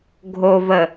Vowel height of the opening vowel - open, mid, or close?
mid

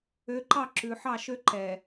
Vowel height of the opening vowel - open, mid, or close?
mid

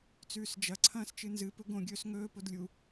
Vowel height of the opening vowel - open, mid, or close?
close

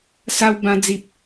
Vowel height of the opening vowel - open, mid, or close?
open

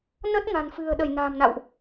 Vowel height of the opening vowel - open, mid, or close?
mid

